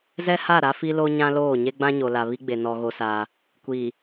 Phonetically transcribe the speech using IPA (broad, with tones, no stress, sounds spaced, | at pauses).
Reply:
z ɛ˦ h a˦˨ ɾ a˦ f i˦ l o˦ ɲ ã˦ l oː˦˨ ɲ e˦ ɡ͡b ã˦ ɲ o˨ l a˨ β i˦ ɡ͡b e˨ n ɔ˦ ɣ o˦ s aː˦ | kʷ iː˨